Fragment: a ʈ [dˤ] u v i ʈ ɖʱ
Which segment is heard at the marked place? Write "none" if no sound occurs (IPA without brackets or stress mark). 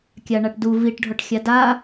d